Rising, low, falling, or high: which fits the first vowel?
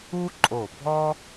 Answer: high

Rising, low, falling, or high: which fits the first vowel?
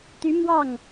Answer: rising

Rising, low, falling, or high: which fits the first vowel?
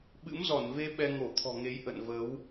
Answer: rising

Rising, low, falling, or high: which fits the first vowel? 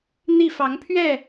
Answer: falling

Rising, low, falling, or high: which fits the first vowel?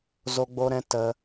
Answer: high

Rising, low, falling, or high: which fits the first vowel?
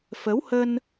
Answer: rising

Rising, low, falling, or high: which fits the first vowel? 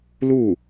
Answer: falling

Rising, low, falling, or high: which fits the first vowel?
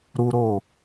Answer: high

